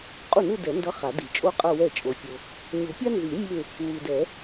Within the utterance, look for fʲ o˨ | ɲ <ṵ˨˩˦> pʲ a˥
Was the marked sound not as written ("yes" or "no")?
yes